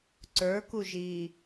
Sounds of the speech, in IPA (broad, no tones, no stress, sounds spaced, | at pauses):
ǀ ə˞ k u ʒ iː